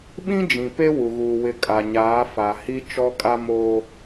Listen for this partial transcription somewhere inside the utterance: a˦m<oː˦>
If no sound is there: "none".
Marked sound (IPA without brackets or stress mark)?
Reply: oː˦